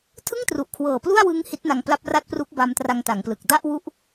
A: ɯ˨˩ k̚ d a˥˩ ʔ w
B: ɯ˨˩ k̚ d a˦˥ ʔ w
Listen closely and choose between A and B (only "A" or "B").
A